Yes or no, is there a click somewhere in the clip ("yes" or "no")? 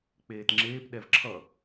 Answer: yes